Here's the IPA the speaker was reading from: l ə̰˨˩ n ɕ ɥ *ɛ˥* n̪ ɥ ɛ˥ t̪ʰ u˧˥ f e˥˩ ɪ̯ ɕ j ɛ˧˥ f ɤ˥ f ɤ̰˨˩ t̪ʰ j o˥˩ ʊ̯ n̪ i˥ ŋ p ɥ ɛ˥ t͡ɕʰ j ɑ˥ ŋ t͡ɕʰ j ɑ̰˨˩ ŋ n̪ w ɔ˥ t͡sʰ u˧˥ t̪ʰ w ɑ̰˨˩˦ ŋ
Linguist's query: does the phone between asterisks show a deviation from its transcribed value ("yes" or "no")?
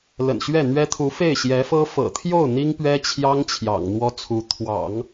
yes